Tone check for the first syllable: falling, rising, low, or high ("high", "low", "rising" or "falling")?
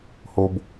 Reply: low